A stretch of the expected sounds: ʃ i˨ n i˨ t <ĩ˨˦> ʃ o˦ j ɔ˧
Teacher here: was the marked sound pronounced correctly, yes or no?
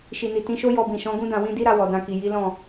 yes